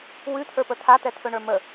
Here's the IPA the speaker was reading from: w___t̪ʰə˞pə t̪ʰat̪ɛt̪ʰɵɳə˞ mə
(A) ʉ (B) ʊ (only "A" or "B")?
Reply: A